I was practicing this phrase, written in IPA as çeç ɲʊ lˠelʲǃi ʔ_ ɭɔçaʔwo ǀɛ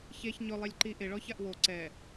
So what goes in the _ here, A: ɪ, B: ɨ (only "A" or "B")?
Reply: A